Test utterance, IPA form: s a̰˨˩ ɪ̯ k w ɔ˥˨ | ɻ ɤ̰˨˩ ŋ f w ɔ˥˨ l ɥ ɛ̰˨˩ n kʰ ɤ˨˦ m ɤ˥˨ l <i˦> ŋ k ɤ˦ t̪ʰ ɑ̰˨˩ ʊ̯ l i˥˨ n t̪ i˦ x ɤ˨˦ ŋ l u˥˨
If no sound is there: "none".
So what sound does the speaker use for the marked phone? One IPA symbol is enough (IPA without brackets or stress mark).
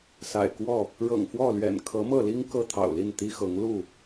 i˦